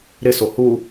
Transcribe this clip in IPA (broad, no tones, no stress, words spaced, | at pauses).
ɾɪso hu